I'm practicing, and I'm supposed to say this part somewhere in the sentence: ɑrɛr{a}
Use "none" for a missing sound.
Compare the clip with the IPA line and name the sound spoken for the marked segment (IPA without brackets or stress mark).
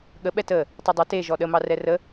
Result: ə